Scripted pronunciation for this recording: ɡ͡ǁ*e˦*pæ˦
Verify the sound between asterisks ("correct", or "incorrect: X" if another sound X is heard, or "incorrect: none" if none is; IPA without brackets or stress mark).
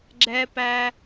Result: incorrect: ɛ˦